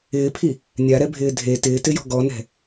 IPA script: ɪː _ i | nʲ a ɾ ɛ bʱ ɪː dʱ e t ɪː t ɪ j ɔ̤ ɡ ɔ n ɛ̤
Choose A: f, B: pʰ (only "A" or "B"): B